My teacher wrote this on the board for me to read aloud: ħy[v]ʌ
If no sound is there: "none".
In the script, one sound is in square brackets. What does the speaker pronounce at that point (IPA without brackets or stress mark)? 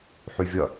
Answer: vʲ